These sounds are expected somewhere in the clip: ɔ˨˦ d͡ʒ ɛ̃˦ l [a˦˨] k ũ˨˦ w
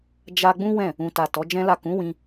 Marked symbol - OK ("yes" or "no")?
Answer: yes